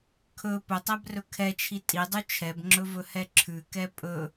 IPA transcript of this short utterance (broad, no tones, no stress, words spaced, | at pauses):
kʰɵ pɵtˤæbrɵ kʰɛt͡ʃʰi tʼidˤʉ t͡ʃʰɛbŋ͡ǁɵvɵhɛ ǁʰʉkɛ pʼɵ